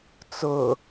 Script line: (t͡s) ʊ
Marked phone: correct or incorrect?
correct